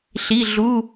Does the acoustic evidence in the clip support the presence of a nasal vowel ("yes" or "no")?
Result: no